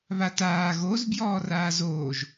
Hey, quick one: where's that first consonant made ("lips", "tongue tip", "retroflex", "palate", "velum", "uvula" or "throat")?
lips